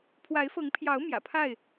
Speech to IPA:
pʰ w a˨˦ ɪ̯ f ɤ˨˦ ŋ pʰ j ɑ˨˦ ʊ̯ m j ä̰˨˩ pʰ a˥˨ ɪ̯

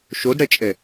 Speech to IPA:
ʃ o d ɽ ɛ t͡ʃʼ ɛ

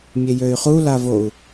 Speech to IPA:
mʲ e j ø y̯ χ u l a v o u̯

